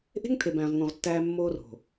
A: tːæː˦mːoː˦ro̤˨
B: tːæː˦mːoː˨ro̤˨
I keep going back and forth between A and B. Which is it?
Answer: A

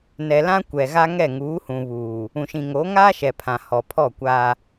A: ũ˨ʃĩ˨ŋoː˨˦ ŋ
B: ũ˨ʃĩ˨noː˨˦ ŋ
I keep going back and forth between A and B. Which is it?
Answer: A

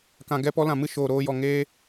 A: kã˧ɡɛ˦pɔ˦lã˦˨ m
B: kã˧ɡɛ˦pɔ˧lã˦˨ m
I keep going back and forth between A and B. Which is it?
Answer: A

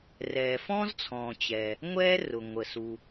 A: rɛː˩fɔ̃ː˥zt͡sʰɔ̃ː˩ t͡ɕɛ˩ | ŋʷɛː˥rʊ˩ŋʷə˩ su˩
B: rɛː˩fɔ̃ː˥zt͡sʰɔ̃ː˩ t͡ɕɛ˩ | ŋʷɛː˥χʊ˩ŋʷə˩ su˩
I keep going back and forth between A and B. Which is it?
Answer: A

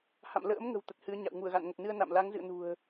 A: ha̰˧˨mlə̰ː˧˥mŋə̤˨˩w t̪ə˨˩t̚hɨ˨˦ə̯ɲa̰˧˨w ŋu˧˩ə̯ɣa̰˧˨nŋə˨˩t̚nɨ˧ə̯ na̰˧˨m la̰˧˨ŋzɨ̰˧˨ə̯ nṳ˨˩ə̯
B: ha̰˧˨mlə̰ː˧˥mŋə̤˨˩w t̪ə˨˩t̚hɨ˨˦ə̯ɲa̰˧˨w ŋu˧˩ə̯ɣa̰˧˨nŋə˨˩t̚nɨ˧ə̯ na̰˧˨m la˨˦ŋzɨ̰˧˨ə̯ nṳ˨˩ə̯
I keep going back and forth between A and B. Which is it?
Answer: B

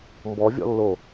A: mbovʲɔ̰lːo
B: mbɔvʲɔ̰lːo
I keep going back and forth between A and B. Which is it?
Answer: B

